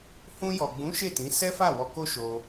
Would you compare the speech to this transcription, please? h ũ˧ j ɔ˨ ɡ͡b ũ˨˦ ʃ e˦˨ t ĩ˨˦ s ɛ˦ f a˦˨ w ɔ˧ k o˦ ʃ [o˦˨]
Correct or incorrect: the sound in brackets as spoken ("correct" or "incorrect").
incorrect